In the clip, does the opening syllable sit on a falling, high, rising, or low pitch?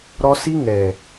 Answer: high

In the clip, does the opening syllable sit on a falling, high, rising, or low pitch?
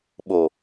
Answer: low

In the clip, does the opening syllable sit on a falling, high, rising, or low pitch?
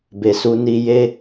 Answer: low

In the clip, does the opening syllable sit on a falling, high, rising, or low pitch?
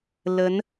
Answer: rising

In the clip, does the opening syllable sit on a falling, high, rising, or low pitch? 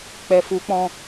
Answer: low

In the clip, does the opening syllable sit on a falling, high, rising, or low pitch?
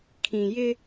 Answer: low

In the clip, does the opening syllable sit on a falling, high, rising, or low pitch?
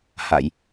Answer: low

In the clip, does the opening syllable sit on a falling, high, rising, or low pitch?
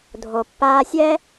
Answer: low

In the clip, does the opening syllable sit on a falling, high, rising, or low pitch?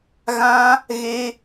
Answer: high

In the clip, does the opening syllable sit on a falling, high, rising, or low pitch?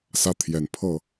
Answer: high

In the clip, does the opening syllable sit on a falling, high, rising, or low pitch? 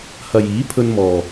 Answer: low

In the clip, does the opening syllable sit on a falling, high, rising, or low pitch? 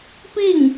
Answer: falling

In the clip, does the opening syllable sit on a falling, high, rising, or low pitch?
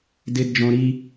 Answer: high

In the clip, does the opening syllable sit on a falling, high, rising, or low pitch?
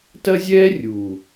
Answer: high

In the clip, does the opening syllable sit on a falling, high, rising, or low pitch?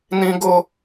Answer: high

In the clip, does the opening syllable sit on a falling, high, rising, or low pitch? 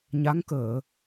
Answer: rising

